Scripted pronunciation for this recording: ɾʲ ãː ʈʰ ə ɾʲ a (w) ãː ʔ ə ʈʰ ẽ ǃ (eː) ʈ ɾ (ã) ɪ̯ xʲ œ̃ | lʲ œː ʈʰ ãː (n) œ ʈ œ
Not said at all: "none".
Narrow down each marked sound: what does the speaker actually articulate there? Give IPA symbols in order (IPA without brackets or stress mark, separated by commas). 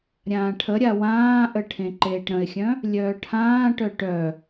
w, eː, ə̃, ʈ